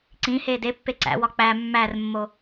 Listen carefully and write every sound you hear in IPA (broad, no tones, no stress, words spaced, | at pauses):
ǀĩ heːdepːe ǀæ̰wɒ k͡pæ mːærmːo